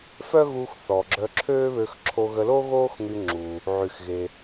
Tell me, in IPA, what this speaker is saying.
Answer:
f œ˥ ɣ u˧ x θ ɔ˩ ɡ͡ǁ œ˧ ǁʰ øː˥ β ø˧ x ǁʰ o˧ ɣ ə˧ l o˥ ɣ oː˥ x ŋ y˧ ŋ͡ǁ u˩ | ʕ y˩ x ɣ e˩

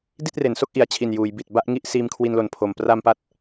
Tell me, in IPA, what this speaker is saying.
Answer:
d i˥˩ t̚ r e˩˦ n s o˥˩ k̚ ʔ i˨˩ a̯ t͡ɕʰ i˨˩ n j uː˩˦ j b i˨˩ t̚ b a˥˩ ʔ ŋ i˥˩ ʔ s iː˧ m kʰ w i˧ n l o˨˩ n pʰ o˨˩ m p r a˧ m p a˦˥ t̚

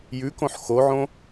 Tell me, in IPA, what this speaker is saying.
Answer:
j ʉ k õ ħ x o ʕ õ

